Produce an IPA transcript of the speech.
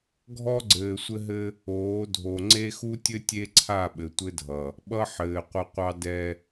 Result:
ɡʱɔ˦ɡ͡ǀɘː˨sʷɘ˦ɦɘ˦ | oː˨˦dʱo˨ ŋ͡ǀe˦xu˦tʲɘ˦ tʲe˦ǀʰa˦˨ ɓɘ˨tʷɘ˦dʱʌ˨ | ɓʌ˦ ħɘː˨qʷʌ˦ qʷɑ˦dɛ˦

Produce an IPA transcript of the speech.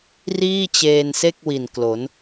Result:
riː˥˩t͡ɕeː˧nse˥˩k̚ wi˨˩nklo˩˦n

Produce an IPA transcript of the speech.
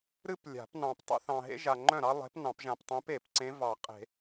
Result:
ɾɨ˥plʲa̤˨˩˦p nɑ̃˨ptˤḛ˥θɑ̃˨ ɦḛ˥ʒa˨ŋ͡ǃœ̃˥˩ɾɑ˥ lˠe̤˧˥pnɑ̃˨˩˦pʒã˨p tˤẽ˧˥pe˨˩˦pǀẽ˧˥ vɑ˨˩˦qʼe̤˨˩˦

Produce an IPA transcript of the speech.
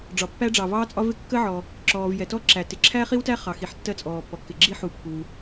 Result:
ɖ͡ʐɒ˩pːæ˥ɖ͡ʐɑ˩ vɑː˥t͡sʼɒ˥vɪ˥ kːə˥ʕɔ˩ | ǁɔː˩vjɛ˩tɔ˥ ǁæ˩ tɪ˩ǁʰæ˥χi˥wtæ˥ χɑ˩ xi˩ħtːɜ˥t͡sʼɔː˩pːɔ˩ kːɪ˩ɡ͡ǁi˥ ħu˩ pːu˩

